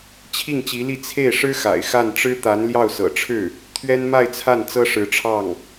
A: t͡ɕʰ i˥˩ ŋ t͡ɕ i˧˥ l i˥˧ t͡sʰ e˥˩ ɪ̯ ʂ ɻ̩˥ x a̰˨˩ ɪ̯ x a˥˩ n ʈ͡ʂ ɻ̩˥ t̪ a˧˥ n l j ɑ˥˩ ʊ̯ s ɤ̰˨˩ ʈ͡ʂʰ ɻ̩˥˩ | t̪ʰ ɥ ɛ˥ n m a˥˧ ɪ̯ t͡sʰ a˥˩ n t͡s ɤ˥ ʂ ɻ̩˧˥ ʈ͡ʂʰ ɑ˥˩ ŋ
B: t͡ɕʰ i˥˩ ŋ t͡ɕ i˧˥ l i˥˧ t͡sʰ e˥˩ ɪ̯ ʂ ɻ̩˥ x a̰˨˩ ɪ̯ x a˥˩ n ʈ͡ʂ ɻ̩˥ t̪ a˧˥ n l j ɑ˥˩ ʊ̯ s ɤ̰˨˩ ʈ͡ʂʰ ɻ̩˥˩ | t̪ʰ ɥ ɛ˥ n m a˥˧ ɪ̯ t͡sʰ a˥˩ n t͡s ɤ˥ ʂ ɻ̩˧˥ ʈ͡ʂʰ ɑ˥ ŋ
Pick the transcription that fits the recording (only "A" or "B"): A